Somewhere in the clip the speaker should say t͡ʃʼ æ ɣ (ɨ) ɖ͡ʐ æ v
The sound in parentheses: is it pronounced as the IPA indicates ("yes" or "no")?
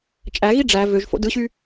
no